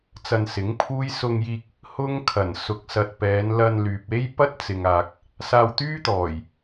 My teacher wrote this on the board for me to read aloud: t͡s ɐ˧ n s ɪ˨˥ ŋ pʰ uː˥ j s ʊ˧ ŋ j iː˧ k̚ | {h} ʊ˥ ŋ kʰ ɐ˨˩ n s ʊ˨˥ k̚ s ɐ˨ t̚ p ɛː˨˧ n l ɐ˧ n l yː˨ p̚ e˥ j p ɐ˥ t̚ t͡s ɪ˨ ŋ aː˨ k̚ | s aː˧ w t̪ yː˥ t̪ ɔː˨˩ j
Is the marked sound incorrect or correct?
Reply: correct